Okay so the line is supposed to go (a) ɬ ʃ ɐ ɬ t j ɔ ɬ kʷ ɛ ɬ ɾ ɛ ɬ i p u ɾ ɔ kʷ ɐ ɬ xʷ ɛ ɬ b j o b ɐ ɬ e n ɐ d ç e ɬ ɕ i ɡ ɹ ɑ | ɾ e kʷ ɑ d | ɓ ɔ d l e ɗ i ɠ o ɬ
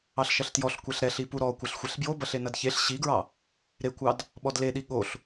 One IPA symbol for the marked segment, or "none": ɑ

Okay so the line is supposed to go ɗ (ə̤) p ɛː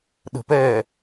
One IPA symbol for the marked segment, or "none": ə̤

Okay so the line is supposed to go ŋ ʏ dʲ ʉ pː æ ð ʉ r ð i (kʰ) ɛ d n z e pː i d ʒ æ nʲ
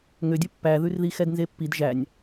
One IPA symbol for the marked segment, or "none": x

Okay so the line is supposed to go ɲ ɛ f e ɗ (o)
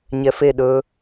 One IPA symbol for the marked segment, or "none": ɵ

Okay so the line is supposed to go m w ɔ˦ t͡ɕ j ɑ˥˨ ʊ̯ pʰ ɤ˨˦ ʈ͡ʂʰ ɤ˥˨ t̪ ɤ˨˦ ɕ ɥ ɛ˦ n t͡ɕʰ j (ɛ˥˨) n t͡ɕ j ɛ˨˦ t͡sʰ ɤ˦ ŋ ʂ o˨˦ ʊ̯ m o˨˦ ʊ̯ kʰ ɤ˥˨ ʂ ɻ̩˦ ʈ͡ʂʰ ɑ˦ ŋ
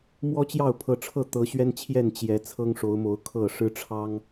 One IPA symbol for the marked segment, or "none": ɛ˥˨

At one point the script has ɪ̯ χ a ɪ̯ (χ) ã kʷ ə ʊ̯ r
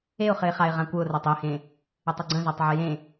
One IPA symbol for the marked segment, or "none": ʁ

